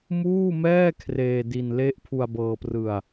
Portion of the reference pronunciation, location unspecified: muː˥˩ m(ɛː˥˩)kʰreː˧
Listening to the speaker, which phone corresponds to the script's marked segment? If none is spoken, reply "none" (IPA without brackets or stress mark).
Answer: ɛː˥˩